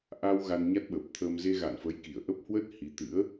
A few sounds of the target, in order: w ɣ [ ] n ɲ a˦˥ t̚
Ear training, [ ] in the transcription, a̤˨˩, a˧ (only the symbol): a˧